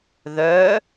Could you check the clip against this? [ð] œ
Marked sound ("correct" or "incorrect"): correct